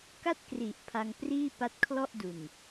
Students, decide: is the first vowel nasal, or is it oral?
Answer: oral